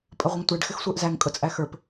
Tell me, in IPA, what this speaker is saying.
pʼ ə ʁʷ ə ŋ tʷ æ ɖ x ɪ x sʷ ə˞ ʔ z æ ŋ kʼ ʊ t͡sʼ æ x ə˞ p

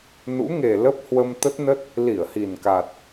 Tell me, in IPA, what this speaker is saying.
n ṵ˧˥ ŋ e˨˩ l ə˦˥ p̚ h w ə˧ m t̪ ə˦˥ t̚ n ə˦˥ t̚ | l i˧˩ ə̯ h i˨˩ n k a˨˩ t̚

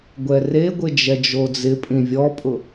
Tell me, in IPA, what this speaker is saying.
ɡʷ ɛ r e ɡʷ ɪ d͡ʒ ɛ d͡ʒ o d͡z ɪ pʼ ĩ vʲ ɔ pʼ ʊ

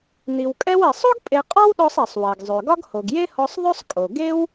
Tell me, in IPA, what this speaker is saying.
n i˩ w kʼ ɛ˧ w ɛ˩ sˤ o˥ ɡ pʼ e˧ qʼ ɒ˥ w ɗ ɔ˧ sˤ ɛ˩ sˤ w ɛ˩ ɡ zˤ ø˩ ɡ ɒ˥ ɡ h o˩ ɡ j e˥ h ɔ˧ sˤ ðˤ ɵ˥ sˤ kʼ o˩ ɡ e˥ w

